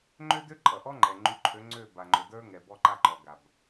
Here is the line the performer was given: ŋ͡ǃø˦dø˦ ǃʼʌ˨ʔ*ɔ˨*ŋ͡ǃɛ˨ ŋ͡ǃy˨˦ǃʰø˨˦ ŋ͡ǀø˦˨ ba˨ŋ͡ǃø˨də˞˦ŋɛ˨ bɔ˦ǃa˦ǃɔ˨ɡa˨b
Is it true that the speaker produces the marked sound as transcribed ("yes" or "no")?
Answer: no